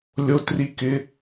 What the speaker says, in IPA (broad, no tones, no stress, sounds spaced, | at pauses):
lʲ o t r i k ɪ